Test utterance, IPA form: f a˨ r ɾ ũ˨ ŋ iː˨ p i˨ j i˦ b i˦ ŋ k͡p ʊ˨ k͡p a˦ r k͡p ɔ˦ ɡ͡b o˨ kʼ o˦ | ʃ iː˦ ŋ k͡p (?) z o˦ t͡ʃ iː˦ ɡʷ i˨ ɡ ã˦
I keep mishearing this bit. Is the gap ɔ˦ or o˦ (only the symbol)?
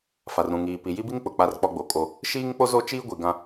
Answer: o˦